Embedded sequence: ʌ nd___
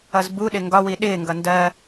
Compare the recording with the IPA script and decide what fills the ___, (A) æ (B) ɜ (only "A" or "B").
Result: B